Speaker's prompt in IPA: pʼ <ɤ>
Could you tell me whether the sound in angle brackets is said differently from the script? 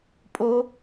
yes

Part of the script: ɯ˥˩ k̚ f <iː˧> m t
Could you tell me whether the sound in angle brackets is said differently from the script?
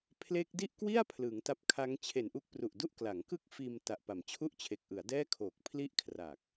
no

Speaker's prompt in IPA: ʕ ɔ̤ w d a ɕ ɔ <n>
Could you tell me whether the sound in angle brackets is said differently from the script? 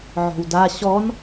no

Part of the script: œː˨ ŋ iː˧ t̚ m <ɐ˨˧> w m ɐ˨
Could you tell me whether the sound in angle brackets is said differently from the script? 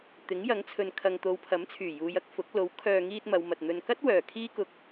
no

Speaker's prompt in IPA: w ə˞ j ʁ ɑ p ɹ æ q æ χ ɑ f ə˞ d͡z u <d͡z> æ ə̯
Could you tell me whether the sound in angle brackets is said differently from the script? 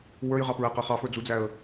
no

